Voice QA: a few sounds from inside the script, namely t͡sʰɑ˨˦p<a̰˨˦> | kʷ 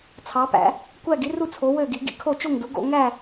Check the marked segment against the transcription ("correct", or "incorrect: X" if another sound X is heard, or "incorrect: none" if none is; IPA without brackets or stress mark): incorrect: æ̰˨˦